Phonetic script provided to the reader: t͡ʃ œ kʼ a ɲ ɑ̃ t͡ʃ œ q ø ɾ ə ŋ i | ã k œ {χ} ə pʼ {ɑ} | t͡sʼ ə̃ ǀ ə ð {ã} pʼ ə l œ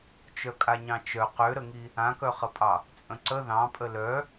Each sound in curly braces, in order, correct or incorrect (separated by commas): correct, correct, incorrect